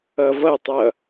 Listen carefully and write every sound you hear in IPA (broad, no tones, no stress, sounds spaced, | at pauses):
ʌ v ʌ tˤ ʌ